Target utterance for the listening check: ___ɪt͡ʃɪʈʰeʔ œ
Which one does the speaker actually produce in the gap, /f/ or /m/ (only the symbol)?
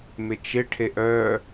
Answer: m